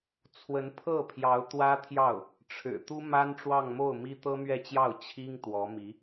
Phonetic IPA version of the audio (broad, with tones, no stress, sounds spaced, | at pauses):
t͡sʰ w ə˧˥ n pʰ ɤ˥˩ pʰ j ɑ˧˥ ʊ̯ t̪ w ä˥ t̪ʰ j ɑ˥˩ ʊ̯ | ʈ͡ʂʰ ɻ̩˨˩ t̪ u˥ m a˥ n ʈ͡ʂ w ɑ˥˧ ŋ m o˥˩ ʊ̯ m i˥ t̪ ɤ˥ m ɥ ɛ˥˧ t͡ɕ j ɑ˥˩ ʊ̯ t͡ɕʰ i˥ ŋ t̪ w ɔ˧˥ m i˧˥